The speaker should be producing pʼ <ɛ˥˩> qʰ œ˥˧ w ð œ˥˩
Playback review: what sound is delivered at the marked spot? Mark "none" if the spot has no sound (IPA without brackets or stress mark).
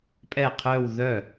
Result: ɛ˥˩